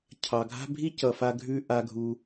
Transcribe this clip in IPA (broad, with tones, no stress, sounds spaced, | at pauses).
cʰ ɑ˩ ɡʱ a̤˥ bʱ i˥ c ʌ˩ f a˨ ɡʱ ʉ˨ ʔ a˩ ɡʱ u˩